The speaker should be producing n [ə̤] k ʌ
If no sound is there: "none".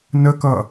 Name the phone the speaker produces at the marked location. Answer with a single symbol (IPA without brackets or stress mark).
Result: ə